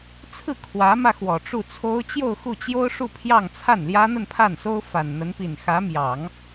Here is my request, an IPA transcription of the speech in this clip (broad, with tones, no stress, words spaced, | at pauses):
t͡sʰɹ̩˥˩ kʰwä˧˥mä˧ xwɔ˨˩ʈ͡ʂu˥˩t͡sʰo˥ʊ̯ t͡ɕjo˥˧ʊ̯xu˥˩t͡ɕjo˥ʊ̯ʂu˥˧ pʰjɑ˥˧ŋt͡sʰa˥˩nljä˥ n̪ə˥˧npʰa˥˩nso˥ʊ̯ fa˨˩nn̪ə˧˥npi˨˩n xä˧˥mjɑ˨˩˦ŋ